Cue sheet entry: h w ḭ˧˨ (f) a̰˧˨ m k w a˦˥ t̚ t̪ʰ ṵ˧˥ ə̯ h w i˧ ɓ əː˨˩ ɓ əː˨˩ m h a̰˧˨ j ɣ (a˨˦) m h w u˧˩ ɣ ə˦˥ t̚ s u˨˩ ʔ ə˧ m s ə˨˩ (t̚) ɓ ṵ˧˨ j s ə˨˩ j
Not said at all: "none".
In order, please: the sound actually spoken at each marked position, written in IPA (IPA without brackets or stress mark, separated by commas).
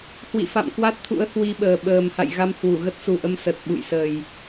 f, a˧, t̚